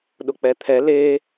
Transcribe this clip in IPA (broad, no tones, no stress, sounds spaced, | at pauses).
ɗ ʊ k͡p ɛ t̪ʰ ɛ l e